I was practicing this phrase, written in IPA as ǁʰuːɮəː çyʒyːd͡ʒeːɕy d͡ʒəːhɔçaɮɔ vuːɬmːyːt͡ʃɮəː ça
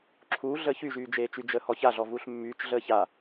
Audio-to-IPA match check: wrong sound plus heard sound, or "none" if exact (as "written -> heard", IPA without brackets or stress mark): ɕ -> t͡ʃ